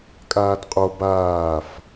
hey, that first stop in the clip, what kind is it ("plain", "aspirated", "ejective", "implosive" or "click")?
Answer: ejective